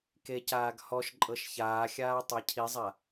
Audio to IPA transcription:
k e c aː ɡ h ɔ ʃ ǃʼ ɤ ʃ ç aː xʲ aː tˤ a cʰ i zˤ a

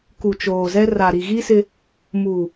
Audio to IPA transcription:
k u˨ t͡ʃ oː˨ z ɛ˦ r a˨ ɾ i˨ ɣ i˦ s ɪ˦ | m uː˨

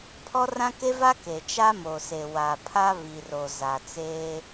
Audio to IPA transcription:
pʰ ɔ˦ r ã˦ k e˦ v a˦ k e˨ t͡ʃ a˦ m o˨ s e˨ w a˨ pʰ a˦ β i˨ r o˨ z a˨ t͡s eː˦

